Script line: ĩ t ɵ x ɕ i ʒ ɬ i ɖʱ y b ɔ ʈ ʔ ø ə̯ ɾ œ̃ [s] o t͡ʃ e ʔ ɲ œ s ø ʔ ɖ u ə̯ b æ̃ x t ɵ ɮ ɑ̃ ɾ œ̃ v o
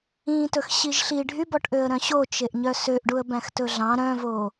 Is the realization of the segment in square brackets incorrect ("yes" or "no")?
yes